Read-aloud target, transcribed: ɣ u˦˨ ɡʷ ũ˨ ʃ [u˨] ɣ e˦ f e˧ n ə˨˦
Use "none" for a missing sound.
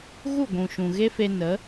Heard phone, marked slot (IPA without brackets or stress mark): ũ˨